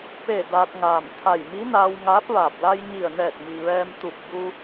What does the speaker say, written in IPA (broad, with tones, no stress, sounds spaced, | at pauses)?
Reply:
p e˧˩ d aː˧ t̚ ŋ aː˧˩ m t̪ʰ a˧˩ j m i˧˥ n aː˧ w ŋ aː˧˥ p̚ ʋ aː˧˩ p̚ l a˧ j ɲ i˧˩ ə̯ n ɛː˧˩ t̚ m i˩ ʋ ɛː˧ m t̪ u˧˩ p̚ b u˧